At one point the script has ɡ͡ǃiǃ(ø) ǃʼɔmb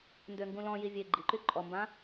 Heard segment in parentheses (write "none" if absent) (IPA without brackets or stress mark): y